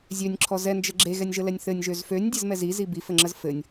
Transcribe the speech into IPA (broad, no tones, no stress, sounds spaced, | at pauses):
zʲ ø nʲ ǁʰ ɔ z ɛ n d͡ʒ ə ɡ͡ǁ e ɣ ɛ nʲ ʒ ə l ɛ nʲ θ ɘ nʲ ʒ ø z f ø nʲ dʲ ɘ z m ɛ z i z i b i f ɘ ŋ͡ǁ ə z f ɘ nʲ